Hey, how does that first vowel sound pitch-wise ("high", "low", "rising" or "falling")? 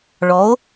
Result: rising